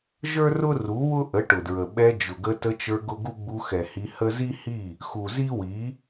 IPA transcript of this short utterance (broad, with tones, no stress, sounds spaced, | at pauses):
ʒ ə˞˦ r ʊ˦ r u˨˦ w ʊ˦ ʔ ə˨˦ ʈ ʊ˨ d ɹ ə˨ ɓ ɛ˧ d͡ʒ ʊ˨ ɡ ə˧ t ə˧ t͡ʃ ə˞˧ ɡ ʊ˦ ɡ u˦ ɡ͡b u˧ x ɛ˨ h i˧ h ə˦ z i˦ h i˦˨ | x u˨ z i˦ w i˨˦